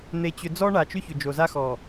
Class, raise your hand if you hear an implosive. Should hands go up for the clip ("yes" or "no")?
no